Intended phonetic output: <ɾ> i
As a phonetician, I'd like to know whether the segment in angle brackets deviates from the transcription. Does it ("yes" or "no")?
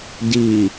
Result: yes